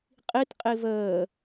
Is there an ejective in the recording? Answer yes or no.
yes